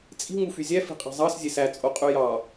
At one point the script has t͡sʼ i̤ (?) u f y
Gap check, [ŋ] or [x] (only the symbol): ŋ